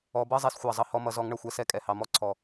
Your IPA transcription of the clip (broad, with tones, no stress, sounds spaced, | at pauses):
ɔ˨˦ b ʌ˧˥˧ zˤ ɛ˨˦ s xʷ ɑ˨˩ zˤ ʌ˨˦ h ɔ˨˦ m ʌ˨˦ z ɔ˨˦ ŋ ɳ ʌ˨˩ xʷ ɛ˨˦ s ɛ˨˦ kʼ ɛ˨˩ h ɑ˨˩ m ɔ˧˥˧ ǀʰ ɔ˨˩